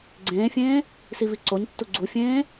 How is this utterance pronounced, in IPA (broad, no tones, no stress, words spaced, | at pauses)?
ɡ͡ǀẽːfʲẽː | siviǀoɲtːu ɡ͡ǀufʲẽː